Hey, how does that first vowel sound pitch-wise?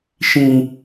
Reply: high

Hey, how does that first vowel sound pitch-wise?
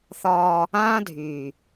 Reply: high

